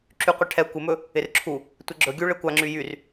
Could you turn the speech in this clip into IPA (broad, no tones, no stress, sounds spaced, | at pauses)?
ǁ y qʷ ɛ ʈʰ ɛ kʷ ɪ m ɵ | ɪ r ǁʰ u | tʷ ɪ ɡ͡ǁ ɵ ɡʲ u ɭ e kʷ a ŋ͡ǁ y j y r